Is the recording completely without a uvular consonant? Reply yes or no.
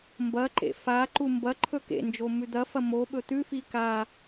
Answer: yes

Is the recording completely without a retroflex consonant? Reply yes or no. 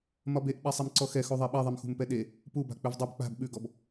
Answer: yes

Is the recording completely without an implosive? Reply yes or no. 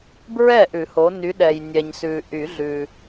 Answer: no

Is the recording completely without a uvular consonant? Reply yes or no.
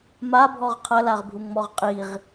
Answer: no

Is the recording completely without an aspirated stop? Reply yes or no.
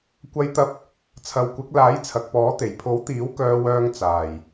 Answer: no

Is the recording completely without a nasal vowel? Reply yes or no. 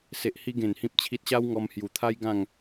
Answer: no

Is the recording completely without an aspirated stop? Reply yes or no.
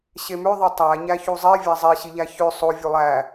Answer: yes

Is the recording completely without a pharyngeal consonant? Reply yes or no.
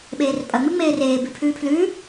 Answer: yes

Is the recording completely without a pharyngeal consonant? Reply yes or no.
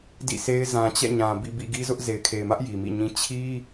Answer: yes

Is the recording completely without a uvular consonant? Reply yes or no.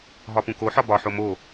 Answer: yes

